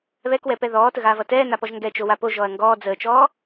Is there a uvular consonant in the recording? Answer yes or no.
no